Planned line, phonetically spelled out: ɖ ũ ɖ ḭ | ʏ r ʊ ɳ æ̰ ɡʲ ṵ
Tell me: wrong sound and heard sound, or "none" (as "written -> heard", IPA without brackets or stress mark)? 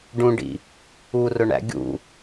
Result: ʏ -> u